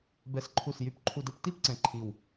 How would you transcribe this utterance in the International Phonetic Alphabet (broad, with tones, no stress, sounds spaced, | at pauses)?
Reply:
b ɛ˨˩ s ǃʰ u˨˩ s j y˨˩ p ǃʰ u˨˩ d ə˥˨ p t i˥˨ p ǀ ɛ̃˨˩ ǃʰ i˨˩ w